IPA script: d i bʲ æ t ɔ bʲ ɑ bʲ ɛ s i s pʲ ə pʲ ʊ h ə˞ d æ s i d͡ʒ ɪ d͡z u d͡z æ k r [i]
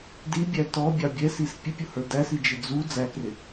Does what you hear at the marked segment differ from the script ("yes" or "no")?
yes